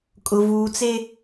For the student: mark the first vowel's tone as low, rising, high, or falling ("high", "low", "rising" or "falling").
low